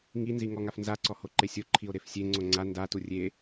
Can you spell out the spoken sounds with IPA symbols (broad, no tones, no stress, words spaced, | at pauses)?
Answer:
ŋinzi ŋɔŋafnzaǀɔ hoǃesʲoǃʰio̯ ɾefsʲeŋ͡ǀo ŋ͡ǀa ndatu rʲe